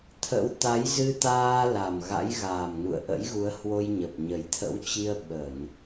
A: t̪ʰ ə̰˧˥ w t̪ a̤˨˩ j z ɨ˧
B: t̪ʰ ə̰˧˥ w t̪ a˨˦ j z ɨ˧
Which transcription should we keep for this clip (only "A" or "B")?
B